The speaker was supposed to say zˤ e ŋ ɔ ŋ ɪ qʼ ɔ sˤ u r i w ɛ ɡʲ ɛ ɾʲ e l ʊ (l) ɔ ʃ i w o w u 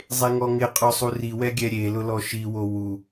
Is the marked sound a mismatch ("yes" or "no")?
no